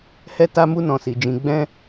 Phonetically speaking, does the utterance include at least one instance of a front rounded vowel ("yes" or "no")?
no